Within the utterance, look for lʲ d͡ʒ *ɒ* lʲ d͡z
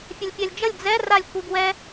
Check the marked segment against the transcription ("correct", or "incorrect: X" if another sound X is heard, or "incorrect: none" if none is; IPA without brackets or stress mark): incorrect: ʌ